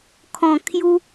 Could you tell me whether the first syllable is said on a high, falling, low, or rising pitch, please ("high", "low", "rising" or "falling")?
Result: low